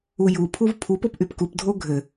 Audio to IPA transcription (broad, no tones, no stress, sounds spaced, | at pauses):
u j u pʰ u v pʰ u p o p ʔ y p k u p dʱ o ɡʱ ɘ